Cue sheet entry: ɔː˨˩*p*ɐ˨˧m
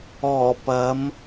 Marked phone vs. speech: correct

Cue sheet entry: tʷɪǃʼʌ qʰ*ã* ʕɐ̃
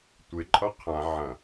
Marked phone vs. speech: correct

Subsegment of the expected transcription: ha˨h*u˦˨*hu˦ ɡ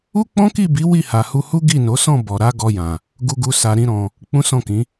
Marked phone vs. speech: incorrect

